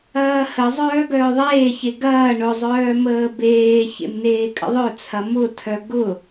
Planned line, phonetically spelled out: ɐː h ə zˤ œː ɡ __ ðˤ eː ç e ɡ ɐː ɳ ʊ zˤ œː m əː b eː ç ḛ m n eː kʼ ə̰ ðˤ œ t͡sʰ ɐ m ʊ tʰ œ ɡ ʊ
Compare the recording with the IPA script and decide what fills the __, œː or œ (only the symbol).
œː